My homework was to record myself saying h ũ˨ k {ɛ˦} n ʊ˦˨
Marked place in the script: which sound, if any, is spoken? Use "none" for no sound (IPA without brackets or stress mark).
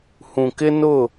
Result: ɪ˦